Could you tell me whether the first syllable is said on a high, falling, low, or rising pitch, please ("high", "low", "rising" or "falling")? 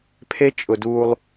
high